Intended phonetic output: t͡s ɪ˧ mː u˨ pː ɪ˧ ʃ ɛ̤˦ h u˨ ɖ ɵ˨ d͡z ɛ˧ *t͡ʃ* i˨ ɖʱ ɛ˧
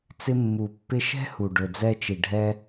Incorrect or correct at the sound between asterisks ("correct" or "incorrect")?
correct